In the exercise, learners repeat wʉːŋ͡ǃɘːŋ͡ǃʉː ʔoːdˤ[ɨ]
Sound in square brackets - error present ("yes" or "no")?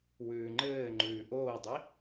yes